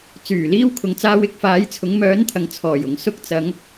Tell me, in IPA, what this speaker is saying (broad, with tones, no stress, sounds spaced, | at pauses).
t͡s yː˨˩ l iː˧ w kʰ ʊ˨ ŋ t͡s aː˧ w ɪ˧ k̚ f aː˨˥ j t͡sʰ ʊ˨˥ ŋ m œː˨˥ n t̪ʰ ɐ˨ ŋ t͡sʰ ɔː˨˩ j ʊ˨˩ ŋ s ʊ˧ k̚ t͡s ɐ˨˧ ŋ